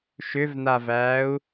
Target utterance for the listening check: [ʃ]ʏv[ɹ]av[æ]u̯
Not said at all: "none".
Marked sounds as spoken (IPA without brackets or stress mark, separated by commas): ʃ, n, æː